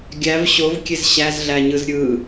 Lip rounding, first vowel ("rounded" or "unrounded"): unrounded